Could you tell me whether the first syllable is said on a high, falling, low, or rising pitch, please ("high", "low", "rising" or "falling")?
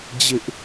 high